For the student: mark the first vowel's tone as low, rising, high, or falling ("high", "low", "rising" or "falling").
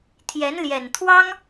rising